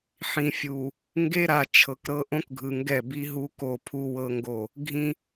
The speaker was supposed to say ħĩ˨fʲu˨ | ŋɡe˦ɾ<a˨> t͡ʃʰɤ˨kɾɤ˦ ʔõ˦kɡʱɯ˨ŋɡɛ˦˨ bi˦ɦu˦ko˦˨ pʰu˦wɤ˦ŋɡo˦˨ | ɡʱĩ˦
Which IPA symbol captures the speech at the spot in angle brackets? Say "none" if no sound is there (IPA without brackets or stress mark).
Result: a˨